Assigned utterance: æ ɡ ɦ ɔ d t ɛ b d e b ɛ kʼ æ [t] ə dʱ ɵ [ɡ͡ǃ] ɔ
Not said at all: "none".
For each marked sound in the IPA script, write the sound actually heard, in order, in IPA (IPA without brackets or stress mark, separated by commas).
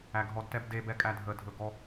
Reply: dʱ, ɡ